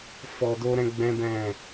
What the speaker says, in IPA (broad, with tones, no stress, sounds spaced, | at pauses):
f ɔ˧ d o˦ ɾ ɛ̃˦ ɡ͡b ɛ̃˦ b ɛ̃˦˨